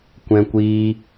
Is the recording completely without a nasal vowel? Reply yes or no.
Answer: no